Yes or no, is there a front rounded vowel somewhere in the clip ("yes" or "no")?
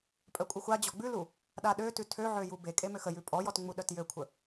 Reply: yes